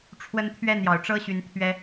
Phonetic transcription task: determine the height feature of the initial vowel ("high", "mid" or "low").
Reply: mid